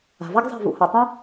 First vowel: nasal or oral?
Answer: oral